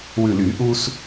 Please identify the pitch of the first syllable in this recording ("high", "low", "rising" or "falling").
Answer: low